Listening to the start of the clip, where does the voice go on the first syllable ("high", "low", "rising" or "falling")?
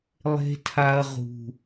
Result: high